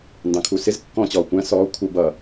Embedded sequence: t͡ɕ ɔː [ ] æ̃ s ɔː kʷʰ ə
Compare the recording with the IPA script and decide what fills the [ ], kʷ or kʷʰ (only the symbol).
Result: kʷ